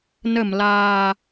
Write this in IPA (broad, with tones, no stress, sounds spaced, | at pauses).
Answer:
n ə˧˩ m l aː˨˩